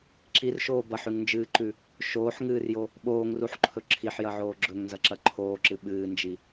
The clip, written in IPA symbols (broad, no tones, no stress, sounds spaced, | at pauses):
ǁ i r ʃ oː b ɐ ħ ʉ ŋ n d͡ʒ ɨː ǃ ʉ | ʃ oː ħ ŋ ɨː r j o | ɓ oː ŋ r u ħ ǃʰ ɵ ǁʰ i ħ j ɐ ʕ oː ɡ͡ǁ ɵ ŋ n z ɐ ǁ ɐ ǃʰ oː ǁ ɨ ɓ ɨː n d͡ʒ i